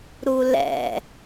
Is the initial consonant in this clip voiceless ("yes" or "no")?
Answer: no